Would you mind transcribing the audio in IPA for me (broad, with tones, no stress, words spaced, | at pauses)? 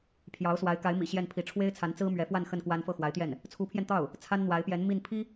pʰjɑ˧˥ʊ̯swa˧˥ɪ̯ ka˧˥ɪ̯mḭ˨˩ ɕjɛ˥˩npʰi˧˥ ʈ͡ʂʰwe˥ɪ̯t͡sʰa˧˥nt͡sɹ̩˥ mɥɛ˧˥fwa˥˧n xə˥˩nkwa˥n fɤ˥˩xwa˧˥ɪ̯t̪jɛ˥˩n | t͡sʰu˧˥pʰjɛ˧nt̪ɑ˥˩ʊ̯ | t͡sʰa˥nn̪wa˧˥ɪ̯pjɛ˧˥n mi˥˩n pʰi˥